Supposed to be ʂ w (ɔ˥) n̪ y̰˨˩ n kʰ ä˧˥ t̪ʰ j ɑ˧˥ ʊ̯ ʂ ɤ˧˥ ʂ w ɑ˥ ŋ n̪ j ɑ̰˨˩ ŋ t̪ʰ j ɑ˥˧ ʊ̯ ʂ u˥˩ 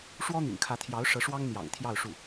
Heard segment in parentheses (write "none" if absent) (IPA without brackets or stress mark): ɔ˥